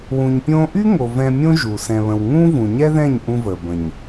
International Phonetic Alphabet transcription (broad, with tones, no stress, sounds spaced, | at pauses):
w ũ˨ ɲ pʲ õː˧ ʔ y˦ ŋ o˨ v ɛ̃˧ mʲ õ˦ ʒ u˨ s ɛ̃˨ β ə̃˨ w ŋ ũː˦ v ũ˨ ɲ ɛ˦ ð ɛ̃˦˨ ɲ ʔ ũ˧ v əː˨ b ə̃˨ ɲ